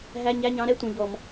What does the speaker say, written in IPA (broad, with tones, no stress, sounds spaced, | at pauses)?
ɦ æ˧˥˧ ɲ æ˧˥˧ ɲ ɑ̃˨˥ ɾ ɛ˧˥˧ tʷ ɛ̃˨˩ ʎ ɔ˧˩˧ m